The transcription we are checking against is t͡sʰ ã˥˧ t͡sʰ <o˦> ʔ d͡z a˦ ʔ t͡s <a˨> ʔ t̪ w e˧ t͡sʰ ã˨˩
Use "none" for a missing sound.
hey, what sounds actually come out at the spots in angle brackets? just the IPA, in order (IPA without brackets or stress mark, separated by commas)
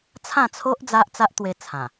o˦, a˦